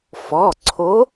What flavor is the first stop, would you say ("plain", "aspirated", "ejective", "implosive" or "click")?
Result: click